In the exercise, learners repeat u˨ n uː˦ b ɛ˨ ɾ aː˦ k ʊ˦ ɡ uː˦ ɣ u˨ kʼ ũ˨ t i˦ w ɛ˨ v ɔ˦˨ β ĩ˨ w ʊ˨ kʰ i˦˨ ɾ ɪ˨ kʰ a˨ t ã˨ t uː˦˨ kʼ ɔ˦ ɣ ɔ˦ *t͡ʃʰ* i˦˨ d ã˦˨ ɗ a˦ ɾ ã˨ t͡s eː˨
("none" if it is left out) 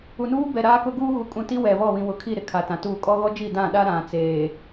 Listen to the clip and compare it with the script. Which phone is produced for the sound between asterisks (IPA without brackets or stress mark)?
d͡ʒ